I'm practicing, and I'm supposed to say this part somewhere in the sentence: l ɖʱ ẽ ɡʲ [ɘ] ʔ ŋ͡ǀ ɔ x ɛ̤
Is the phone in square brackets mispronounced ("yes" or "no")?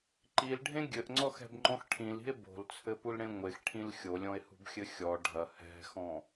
no